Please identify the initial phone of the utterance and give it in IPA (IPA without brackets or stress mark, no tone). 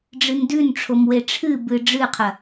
ɖ͡ʐ